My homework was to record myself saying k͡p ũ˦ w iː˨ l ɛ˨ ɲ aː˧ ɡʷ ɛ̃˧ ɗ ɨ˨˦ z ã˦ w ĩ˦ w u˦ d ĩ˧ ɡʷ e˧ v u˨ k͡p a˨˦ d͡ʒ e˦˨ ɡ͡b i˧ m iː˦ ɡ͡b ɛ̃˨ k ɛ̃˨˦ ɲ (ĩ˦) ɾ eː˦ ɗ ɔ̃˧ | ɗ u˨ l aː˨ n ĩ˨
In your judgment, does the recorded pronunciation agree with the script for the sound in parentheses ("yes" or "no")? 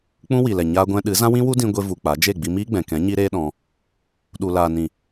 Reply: no